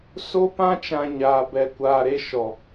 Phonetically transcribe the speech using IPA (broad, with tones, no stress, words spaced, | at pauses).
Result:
so˦pã˦t͡ʃã˨ ɲaː˨bɛ˨ kʷaː˨ɾe˦ ʃɔ˨